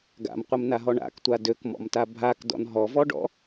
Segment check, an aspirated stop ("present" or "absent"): absent